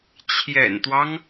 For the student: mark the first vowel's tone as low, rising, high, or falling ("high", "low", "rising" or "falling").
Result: low